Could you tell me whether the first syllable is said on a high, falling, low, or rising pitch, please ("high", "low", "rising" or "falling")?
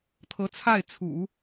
rising